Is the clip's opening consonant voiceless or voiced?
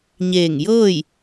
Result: voiced